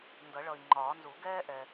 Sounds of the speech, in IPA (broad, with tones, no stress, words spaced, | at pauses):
ndʌ˨˩˦ɭʌ˨i̯ŋ͡ǃɒː˨˩˦nzu˨˩˦ ɡɛː˥ʔɛ˨